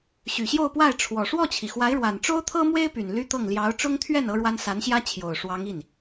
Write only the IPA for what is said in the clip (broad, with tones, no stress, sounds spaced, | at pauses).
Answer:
ɕ y˨˩ ɕ j o˥˧ ʊ̯ p w a˥˩ ɪ̯ ʈ͡ʂʰ w ɔ˨˩ ʂ w ɔ˥˩ t͡ɕʰ i˩ x w a˧˥ ɪ̯ ɻ w a˨˩ n ʈ͡ʂ o˥ ʊ̯ t̪ʰ ɤ˥ m w e˥ ɪ̯ p y˨˩ n l y˥ t̪ ɤ˥˩ ŋ l j ɑ˧˥ ʊ̯ ʈ͡ʂ ʊ˥ ŋ t̪ʰ ɥ ɛ˥˩ n ɤ˥ ɻ w a˥ n s a˧˥ n ɕ j ä˥ t͡ɕʰ j o˨˩ ʊ̯ ʂ w ɑ˧˥ ŋ i˥˩ n